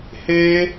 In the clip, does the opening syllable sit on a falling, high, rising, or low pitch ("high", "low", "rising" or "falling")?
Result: high